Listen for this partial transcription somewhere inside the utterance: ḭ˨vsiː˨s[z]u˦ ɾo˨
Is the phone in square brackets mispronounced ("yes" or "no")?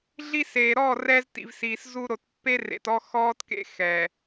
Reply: no